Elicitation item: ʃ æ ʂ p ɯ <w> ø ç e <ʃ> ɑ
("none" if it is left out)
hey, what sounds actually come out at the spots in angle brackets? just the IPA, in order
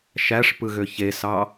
ɣ, s

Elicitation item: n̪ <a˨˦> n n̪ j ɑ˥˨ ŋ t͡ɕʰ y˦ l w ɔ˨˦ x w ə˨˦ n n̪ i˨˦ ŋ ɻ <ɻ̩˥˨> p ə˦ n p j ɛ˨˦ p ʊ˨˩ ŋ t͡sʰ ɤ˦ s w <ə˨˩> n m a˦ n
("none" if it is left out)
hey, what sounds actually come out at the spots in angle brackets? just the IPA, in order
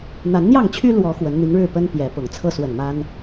a˨˦, ɻ̩˥˨, ə˨˩

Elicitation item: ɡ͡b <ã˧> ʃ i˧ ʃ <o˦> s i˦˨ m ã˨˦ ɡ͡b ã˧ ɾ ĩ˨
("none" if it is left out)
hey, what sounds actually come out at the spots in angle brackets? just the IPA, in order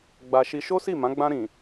a˧, o˦

